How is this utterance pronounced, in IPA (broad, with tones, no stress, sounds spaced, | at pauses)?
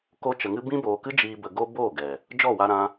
k o˧ t͡ʃ ə˨ ŋ ɨ˧ b ĩ˧ b oː˨ k ɨ˧ d͡ʒ iː˨ b ə˨ ɡ o˧ b oː˦˨ ɡ ɛ˨ | d͡ʒ ɔ˦˨ w a˧ ɾ ã˧